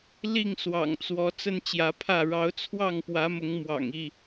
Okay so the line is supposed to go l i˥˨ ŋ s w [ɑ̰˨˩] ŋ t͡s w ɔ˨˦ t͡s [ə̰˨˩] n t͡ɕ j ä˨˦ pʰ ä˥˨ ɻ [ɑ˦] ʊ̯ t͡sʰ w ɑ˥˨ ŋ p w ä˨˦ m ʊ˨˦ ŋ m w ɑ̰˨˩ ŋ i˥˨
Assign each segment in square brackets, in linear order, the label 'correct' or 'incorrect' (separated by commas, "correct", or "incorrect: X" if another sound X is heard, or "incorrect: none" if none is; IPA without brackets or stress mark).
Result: correct, incorrect: ə˦, incorrect: ɑ˨˦